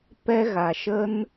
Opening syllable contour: high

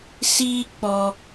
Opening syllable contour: high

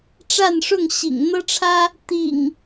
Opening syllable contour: falling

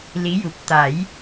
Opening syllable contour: rising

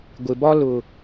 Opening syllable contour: low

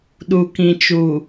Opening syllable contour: low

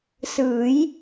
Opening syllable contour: rising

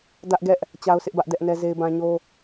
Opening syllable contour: high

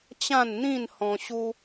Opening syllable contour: falling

